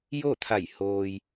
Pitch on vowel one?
falling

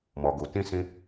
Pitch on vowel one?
low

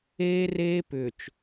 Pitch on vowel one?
high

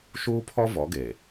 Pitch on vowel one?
high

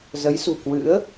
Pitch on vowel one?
rising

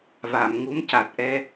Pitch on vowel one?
low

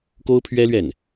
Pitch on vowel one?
high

